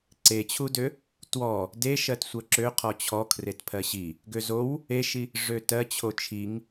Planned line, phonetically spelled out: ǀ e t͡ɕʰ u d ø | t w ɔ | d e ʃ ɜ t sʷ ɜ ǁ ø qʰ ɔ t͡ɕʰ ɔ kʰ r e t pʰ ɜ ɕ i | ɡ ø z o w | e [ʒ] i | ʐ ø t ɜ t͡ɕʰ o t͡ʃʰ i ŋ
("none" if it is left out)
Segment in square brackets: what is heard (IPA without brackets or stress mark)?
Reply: ʃ